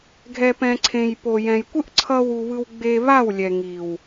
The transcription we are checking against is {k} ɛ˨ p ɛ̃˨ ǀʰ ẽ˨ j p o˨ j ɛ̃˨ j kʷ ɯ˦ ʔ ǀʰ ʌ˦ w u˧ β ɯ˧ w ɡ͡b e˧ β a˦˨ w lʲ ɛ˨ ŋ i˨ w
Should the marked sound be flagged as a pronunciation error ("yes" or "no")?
yes